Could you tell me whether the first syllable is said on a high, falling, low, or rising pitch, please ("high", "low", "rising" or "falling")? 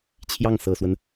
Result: falling